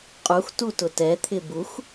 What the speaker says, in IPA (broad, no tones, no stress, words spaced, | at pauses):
qʼux tutʊtɛt̪ʰɪ bux